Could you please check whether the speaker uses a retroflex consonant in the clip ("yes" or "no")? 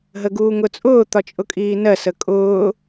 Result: no